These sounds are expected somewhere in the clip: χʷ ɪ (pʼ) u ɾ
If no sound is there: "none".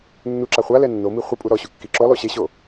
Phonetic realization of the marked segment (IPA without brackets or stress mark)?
pʼ